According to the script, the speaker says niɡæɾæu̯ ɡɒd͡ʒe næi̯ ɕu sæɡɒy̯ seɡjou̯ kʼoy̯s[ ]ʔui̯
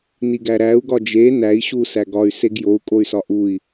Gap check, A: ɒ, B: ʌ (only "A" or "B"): A